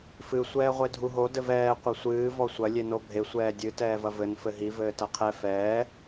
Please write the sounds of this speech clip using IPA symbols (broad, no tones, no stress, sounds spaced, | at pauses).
f ɨ sʷ ɛː ʁʷ e dʱ u ɦ o d ɘ v ɛː qʷ ɐ sʷ ɨː v ɔ sʷ ɐ lʲ e n o bʱ e sʷ ɛː dʲ ɨ t ɛː v ɐ v ɘ n f ɘ ɦ i v ɘː t ɐ qʰ ɛ f ɛː